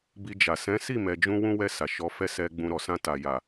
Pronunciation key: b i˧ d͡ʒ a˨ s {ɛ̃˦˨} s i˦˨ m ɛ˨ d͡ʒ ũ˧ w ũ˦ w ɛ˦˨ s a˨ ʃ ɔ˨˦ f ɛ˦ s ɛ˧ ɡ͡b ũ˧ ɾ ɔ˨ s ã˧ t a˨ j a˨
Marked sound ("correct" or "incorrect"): incorrect